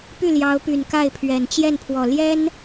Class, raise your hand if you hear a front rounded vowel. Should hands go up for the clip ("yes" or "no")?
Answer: yes